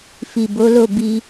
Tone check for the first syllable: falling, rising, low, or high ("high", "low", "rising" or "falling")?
low